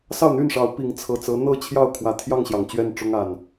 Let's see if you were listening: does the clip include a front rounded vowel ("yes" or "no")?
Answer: yes